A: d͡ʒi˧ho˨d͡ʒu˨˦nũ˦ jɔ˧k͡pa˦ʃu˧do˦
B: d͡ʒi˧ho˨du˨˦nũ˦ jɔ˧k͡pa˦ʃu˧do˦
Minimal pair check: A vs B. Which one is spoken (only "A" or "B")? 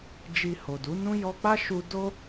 B